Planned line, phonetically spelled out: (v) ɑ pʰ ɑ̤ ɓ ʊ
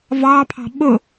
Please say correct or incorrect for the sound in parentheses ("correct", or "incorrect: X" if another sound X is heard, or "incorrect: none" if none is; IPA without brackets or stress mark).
correct